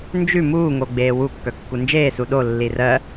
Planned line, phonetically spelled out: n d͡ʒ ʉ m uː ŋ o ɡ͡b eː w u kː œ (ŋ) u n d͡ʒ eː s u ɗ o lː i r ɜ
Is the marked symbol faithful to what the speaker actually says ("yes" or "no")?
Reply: no